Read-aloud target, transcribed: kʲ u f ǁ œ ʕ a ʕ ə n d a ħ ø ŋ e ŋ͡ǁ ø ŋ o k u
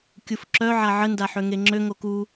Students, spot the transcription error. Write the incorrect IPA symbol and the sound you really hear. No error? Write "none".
none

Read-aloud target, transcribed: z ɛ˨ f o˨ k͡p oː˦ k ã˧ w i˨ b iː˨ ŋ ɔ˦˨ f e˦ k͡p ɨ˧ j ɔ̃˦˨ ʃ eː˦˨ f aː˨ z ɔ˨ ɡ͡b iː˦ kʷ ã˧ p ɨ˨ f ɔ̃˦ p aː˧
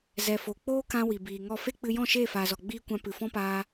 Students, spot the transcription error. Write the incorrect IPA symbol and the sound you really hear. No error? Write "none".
none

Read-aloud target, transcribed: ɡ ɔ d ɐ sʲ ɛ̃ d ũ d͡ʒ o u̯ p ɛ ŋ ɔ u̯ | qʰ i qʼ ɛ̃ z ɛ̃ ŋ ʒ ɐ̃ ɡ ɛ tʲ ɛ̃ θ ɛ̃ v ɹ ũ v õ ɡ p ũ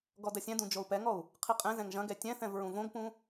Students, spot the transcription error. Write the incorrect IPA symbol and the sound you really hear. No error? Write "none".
none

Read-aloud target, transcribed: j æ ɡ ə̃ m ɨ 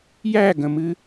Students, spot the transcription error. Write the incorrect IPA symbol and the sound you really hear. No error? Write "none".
none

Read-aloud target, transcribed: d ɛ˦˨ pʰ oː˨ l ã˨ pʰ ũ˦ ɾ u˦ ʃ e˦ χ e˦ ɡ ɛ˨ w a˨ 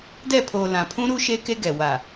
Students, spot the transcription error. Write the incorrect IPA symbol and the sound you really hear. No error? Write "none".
χ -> k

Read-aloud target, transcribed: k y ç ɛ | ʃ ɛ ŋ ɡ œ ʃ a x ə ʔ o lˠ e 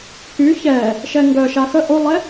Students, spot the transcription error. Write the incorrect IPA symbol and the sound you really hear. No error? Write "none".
none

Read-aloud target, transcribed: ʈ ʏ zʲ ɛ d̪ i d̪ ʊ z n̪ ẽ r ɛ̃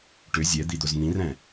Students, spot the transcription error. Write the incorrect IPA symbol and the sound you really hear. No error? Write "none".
ẽ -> ĩ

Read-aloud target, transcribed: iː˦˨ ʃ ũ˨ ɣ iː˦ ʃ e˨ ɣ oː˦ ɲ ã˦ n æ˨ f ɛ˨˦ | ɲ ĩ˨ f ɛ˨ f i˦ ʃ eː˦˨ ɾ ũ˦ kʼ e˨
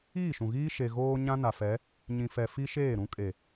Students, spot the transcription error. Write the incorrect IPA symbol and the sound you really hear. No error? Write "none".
æ˨ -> a˨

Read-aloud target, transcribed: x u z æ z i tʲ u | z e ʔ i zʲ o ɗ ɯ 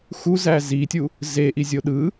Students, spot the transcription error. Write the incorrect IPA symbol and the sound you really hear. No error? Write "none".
none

